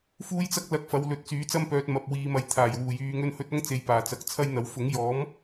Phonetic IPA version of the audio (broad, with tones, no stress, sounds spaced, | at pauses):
f uː˥ j t͡s ɐ˥ k̚ l ɐ˧ k̚ f ɐ˨˧ w l ɵ˨˥ t̚ t͡s yː˨˥ t͡s ɐ˥ m p œː˧ t̚ m ɐ˨ p̚ w iː˧ m ɐ˧ j t̪ʰ aː˨˩ j w uː˨˩ j yː˧ ŋ ɵ˥ n h ɵ˥ t̚ ɐ˥ ŋ t͡s e˨ j p aː˨˩ t͡s ɐ˨˥ k̚ t͡sʰ ɐ˥ j n̪ ɐ˨˥ w f ʊ˨˥ ŋ j ɔː˨˥ m